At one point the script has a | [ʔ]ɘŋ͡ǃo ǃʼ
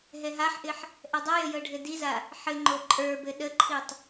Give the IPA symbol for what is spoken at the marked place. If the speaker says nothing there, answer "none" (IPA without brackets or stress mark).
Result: ħ